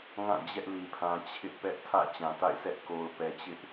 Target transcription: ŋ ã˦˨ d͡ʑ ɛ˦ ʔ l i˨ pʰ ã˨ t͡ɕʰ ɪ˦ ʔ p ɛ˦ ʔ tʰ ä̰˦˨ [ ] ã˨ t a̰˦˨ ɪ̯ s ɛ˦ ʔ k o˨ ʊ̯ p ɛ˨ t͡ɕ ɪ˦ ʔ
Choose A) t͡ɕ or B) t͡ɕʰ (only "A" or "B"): A